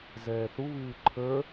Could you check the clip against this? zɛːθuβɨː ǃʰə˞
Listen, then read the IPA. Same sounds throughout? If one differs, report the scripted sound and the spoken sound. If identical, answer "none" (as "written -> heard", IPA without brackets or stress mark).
none